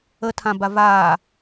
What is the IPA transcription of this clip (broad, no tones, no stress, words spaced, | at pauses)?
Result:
ətʰãba vaː